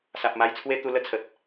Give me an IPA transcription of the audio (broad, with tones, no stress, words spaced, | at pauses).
sa˨p̚ma˧jt͡sʰwe˦ t̪u˧lə˥˧t͡sʰə˨t̚